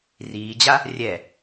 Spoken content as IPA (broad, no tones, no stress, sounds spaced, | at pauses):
r iː d͡ʑ a | rʲ ɛ